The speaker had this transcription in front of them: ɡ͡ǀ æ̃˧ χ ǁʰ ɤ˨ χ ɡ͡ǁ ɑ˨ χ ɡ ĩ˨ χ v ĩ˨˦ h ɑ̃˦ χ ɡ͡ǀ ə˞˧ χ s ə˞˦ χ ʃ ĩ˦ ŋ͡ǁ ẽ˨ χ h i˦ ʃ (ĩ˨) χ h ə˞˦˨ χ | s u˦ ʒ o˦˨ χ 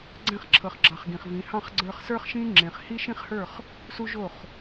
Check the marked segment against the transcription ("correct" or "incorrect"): incorrect